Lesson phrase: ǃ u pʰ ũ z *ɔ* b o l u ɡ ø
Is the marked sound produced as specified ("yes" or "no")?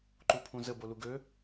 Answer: no